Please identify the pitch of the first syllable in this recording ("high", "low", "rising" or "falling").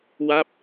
falling